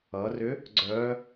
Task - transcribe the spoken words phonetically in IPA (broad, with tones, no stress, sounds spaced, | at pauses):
ʌ˩˧ r ʏ˧˥ | ɡ͡ǀ œ˧˥